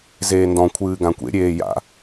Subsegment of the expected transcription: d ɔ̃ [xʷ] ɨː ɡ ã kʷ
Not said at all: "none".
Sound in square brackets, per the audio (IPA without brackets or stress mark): kʷʰ